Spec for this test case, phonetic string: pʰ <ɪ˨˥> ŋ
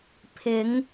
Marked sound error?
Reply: yes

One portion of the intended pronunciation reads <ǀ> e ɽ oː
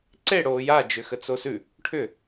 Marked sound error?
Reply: no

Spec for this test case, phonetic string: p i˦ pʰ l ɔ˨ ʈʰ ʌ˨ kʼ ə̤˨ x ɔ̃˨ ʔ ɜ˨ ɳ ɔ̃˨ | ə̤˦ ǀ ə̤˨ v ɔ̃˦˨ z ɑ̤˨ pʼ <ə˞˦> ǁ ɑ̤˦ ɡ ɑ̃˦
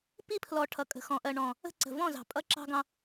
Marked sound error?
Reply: yes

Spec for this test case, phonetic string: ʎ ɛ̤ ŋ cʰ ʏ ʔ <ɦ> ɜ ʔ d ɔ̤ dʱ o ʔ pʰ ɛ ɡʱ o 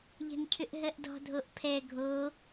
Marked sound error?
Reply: no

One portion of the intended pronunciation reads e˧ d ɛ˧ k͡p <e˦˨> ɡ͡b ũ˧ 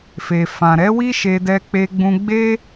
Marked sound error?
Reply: yes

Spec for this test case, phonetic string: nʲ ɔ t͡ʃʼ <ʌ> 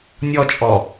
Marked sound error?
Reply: yes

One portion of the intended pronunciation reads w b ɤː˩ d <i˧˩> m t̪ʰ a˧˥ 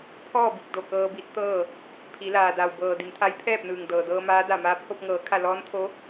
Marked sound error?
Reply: yes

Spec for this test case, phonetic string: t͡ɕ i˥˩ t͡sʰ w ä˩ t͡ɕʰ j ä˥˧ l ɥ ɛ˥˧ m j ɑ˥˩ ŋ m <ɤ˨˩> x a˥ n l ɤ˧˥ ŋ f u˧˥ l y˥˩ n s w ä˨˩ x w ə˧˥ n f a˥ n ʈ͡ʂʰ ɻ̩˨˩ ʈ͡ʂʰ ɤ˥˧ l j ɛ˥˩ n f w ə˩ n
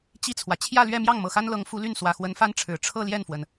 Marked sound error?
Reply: no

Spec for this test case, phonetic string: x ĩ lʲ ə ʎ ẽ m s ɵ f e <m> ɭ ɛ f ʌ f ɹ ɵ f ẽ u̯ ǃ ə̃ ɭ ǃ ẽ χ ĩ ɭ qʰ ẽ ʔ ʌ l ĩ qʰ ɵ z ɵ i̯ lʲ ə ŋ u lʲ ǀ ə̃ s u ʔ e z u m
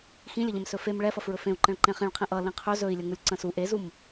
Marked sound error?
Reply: no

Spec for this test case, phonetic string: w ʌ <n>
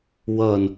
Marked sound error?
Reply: no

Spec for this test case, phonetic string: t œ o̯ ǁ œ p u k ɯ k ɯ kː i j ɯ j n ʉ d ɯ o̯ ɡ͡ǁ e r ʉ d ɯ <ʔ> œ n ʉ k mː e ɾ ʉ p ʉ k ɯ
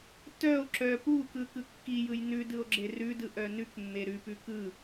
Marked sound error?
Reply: no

